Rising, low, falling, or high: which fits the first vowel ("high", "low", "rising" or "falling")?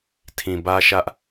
low